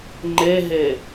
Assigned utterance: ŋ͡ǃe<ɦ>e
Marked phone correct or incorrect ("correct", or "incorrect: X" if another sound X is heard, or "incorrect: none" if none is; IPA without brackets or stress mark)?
correct